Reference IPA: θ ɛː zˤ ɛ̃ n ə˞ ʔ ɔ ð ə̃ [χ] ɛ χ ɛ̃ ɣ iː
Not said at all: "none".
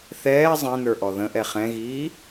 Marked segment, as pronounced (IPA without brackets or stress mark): ʔ